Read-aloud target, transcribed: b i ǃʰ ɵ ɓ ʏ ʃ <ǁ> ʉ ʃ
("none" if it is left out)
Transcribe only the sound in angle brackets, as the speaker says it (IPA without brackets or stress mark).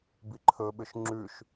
ŋ͡ǁ